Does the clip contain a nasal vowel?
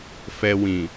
yes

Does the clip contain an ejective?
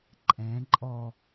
yes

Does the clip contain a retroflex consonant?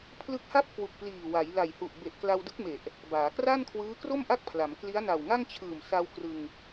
no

